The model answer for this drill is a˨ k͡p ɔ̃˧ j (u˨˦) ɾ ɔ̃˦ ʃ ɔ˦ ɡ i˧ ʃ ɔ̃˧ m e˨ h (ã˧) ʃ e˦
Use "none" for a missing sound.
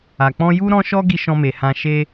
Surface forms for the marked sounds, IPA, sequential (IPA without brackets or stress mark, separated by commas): u˦, ã˧